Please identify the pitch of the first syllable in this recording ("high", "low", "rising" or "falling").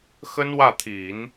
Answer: high